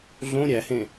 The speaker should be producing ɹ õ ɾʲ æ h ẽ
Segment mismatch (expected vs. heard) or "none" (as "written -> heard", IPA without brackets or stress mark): ɹ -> ɮ